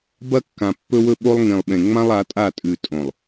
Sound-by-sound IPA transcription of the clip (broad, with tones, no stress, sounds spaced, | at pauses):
b ɐ˦ kː ã˨ pː ɵ˦ w ɵ˦ ɓ o˦ lˠ ŋ ĩ˨ lˠ ɓ ẽ˨ ŋ͡m ã˦ lˠ a˨˦ tʼ a˦˨ tʼ ʉ˨ tʼ õ˨ lˠ